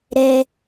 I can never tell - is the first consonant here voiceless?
no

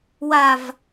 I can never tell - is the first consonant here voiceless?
no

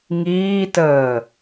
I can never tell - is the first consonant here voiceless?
no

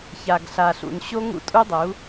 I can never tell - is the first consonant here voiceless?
yes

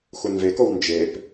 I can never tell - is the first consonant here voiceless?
yes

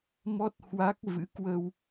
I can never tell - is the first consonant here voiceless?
no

